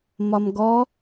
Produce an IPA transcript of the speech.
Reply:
mɒmɡɔ

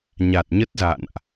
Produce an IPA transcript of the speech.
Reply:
ɲa˨˩t̚ɲə˦˥t̚za̰˧˨nʔ

